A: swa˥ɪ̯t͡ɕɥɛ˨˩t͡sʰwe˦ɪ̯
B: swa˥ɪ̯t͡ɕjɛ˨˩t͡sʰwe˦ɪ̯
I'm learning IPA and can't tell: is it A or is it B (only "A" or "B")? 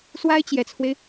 B